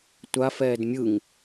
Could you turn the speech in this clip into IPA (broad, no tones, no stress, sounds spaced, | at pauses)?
tʷ a f ɛː d mʲ ɯ ŋ